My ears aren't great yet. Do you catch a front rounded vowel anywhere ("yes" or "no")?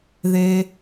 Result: no